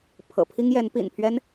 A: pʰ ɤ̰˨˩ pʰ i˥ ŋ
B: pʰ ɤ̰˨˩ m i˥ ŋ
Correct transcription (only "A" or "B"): A